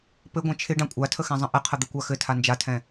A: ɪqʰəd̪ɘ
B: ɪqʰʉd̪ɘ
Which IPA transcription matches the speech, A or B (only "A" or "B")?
A